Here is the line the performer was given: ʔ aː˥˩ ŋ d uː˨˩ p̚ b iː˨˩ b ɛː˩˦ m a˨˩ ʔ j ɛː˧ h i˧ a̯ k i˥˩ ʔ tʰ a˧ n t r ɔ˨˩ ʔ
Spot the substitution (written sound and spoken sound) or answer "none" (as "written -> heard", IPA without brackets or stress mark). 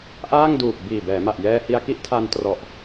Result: none